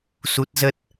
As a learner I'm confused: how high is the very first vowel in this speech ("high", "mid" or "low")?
high